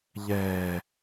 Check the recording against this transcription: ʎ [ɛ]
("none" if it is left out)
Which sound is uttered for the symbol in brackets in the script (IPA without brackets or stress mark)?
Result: ɛː